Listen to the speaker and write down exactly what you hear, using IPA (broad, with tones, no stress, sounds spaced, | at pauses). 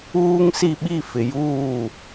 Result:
uː˦ ŋ s i˦˨ ɓ i˦˨ f ɪ˨ j uː˦˨